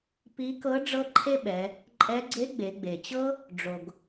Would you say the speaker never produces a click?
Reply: no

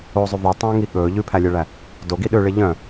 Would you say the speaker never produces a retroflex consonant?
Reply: no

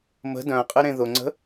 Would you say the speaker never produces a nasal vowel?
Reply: no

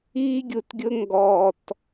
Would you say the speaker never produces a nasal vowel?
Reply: yes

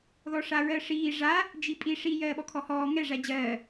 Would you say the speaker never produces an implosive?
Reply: no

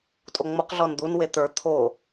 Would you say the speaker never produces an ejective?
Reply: no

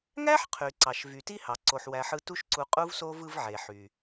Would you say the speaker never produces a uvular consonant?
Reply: no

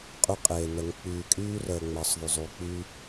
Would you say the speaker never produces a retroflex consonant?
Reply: yes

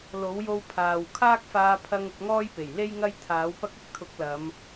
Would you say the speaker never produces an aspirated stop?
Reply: no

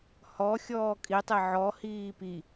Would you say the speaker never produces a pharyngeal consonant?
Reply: no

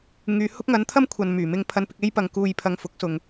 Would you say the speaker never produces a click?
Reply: yes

